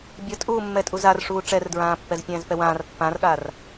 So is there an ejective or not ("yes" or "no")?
yes